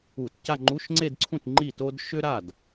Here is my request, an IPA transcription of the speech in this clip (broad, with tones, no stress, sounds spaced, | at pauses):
u˧˩˧ t c a˥˧ ŋ͡ǃ u˧˥˧ ʃ ŋ͡ǀ e˥˧ d ǀʰ ũ˥˩ t ŋ͡ǃ i˥˩ t o˥ d ʃ ʏ˥ ɾ a˥˩ d